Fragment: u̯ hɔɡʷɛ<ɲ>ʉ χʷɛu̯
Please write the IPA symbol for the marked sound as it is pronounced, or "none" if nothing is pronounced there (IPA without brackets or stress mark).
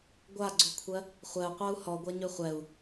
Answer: ɲ